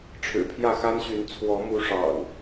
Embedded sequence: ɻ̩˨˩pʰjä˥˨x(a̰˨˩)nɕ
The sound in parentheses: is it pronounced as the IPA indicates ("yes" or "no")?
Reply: no